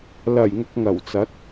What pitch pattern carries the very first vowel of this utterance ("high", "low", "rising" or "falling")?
low